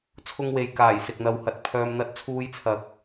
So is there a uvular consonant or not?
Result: no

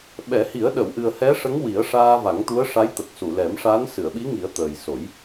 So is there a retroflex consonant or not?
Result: yes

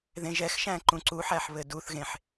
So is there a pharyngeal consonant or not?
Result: yes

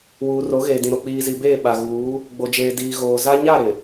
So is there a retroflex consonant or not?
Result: no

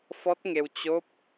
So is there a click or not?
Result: no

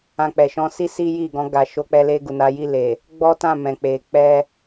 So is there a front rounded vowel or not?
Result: no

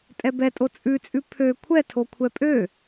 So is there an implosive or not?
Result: no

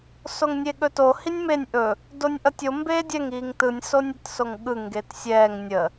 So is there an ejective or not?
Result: no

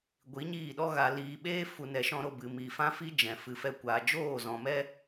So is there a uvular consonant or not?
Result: no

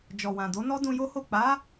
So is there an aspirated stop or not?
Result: no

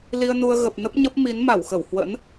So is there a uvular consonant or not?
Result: no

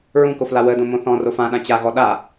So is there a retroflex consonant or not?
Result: no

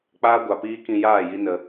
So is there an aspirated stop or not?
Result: no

